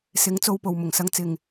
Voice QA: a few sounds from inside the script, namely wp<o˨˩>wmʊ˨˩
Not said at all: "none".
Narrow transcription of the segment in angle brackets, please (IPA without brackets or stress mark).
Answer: o˨